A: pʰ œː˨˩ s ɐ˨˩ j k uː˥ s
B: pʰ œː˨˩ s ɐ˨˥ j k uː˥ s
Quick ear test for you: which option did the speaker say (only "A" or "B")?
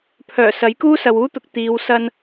B